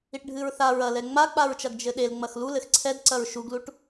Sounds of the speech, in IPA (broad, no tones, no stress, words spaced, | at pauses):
iʈɖʱɨɹθa ɹɐ lɛŋ͡mak͡paɹt͡ʃɐɡ d͡ʒɘɗel ŋ͡mɐxlulɘx ǀʰɛdǀɐɹ ʃuɡluʈ